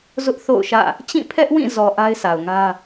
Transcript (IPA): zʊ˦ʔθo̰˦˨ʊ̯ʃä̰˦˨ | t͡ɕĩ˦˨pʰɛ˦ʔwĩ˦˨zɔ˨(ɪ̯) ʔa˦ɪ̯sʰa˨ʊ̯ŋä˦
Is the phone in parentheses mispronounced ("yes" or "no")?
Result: yes